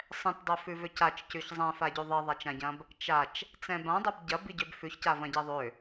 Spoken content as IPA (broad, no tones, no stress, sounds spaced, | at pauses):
sˤ ɛ̃ t dˤ ø f ʉ v ø c a t͡ʃ c ʉ ç zˤ ɛ̃ f a ɟ ʉ ðˤ i ðˤ a t͡ʃ ã ɟ ɐ̃ b | t͡ʃ a t͡ʃ | t͡s ɛ̃ b ã dˤ ʏ b ɟ ɐ b i ɟ ø b f ʉ ç c a v ɐ̃ ɟ i ðˤ ø